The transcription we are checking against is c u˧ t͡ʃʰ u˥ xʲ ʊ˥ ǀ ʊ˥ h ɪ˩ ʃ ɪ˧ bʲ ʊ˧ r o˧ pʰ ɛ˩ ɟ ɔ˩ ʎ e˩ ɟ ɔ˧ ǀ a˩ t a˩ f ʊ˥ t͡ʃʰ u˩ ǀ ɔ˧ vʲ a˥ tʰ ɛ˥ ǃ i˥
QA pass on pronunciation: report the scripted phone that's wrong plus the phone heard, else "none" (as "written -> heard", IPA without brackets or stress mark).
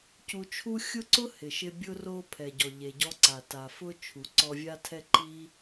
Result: none